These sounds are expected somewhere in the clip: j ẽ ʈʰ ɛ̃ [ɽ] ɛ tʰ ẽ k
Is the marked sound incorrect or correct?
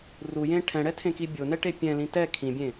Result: correct